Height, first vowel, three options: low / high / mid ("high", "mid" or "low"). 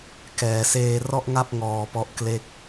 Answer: mid